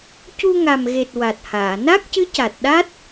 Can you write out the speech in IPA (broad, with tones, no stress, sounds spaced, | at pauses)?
c u˧ ŋ a˨˩ m ɣ e˨˩ t̚ w a˨˩ t̚ h aː˨˩˨ n a˦˥ k̚ c ɨ˧˥ c a˨˩ t̚ ɗ a˦˥ t̚